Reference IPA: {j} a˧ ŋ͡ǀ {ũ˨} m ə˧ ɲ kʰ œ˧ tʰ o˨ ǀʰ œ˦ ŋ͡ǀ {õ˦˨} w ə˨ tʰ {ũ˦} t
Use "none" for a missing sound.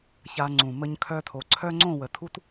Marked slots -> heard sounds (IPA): ç, ũ˨, õ˦˨, u˦

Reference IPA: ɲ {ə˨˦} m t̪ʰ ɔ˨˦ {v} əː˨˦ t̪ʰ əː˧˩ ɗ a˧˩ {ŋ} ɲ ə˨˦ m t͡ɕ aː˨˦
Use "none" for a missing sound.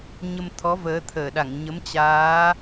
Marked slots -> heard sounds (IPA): ə˧, v, ŋ

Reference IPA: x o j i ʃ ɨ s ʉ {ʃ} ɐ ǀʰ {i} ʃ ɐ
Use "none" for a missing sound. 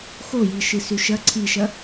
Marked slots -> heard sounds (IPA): ʃ, i

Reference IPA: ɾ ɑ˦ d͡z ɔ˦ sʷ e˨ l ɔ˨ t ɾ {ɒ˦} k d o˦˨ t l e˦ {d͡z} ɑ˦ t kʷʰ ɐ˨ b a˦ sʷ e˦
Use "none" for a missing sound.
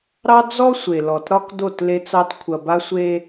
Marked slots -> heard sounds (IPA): ɒ˦, t͡s

